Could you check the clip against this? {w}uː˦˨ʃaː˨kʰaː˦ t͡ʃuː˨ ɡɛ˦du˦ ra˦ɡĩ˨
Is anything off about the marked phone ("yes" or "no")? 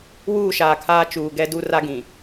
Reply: no